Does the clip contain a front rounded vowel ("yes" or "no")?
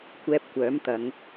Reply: yes